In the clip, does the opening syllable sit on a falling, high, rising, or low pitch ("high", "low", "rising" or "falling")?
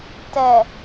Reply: low